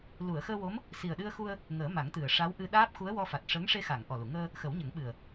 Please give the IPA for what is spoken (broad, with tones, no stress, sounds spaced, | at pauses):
l u˨˩˨ ə̯ x əː˧ w o˧˥ m | s i˨˩ ə̯ ɗ ɨ˧ ə̯ x u˧ ə̯ | ŋ əː˨˩˦ m a˨˩˦ ŋ t̪ ɨ˨˩ ə̯ ʂ a˧˥ w ʔ ɨ˧ ɗ aː˦˥ p̚ x u˧˥ ə̯ w ɔ˧ f a˨˩ t̚ ʂ əː˧˥ ŋ ʂ e˧ x a˨˩˨ ŋ ʔ ɔ˨˩ l u˨˩˨ ŋ əː˧ | x ə˨˩˦ w ɲ ə˨˩˦ ŋ ɓ ɨ˨˩ ə̯